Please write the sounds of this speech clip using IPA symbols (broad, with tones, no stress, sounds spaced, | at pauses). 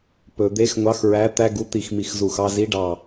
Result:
p ɵ˩ d̪ e˨˥ x ŋʷ ɑ˨˥ x ɹ æ˨˥ t̪ æ˦ ɡ u˨˥ t̪ i˧˩ x m i˧˩ x z u˧˩ x ɑ˦ z i˨˥ ɖ ɑ˧˩